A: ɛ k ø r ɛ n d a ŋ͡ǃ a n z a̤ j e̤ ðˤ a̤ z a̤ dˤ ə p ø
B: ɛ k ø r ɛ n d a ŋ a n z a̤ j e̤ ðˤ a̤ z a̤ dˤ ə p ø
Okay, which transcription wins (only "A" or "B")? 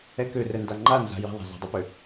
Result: A